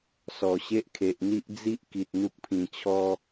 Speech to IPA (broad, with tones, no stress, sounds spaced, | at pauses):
s ɔ˨˩ ɕ e˦ ʔ kʰ e˨ ʔ n̪ i˦ ʔ d͡z i˦ ʔ k i˨ t̚ n̪ u˦ k̚ pʰ ĩ˧ t͡ɕʰ ɔ˦